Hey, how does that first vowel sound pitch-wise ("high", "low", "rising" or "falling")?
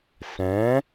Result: rising